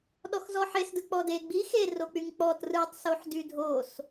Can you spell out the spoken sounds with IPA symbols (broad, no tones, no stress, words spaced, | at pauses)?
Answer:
ɗɔxzɔħesdɯ k͡pɔde ɡ͡bi xerok͡pyŋ k͡pɔt rɯtˤsoħ dydʱos